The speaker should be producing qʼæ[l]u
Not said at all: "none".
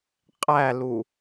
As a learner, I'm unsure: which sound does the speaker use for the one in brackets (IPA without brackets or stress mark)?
l